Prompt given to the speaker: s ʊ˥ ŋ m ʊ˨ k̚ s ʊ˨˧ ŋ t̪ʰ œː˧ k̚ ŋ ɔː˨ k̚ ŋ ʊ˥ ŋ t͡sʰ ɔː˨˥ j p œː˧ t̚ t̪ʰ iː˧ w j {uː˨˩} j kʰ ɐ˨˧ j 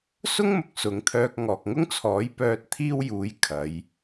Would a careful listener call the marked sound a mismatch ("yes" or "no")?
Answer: yes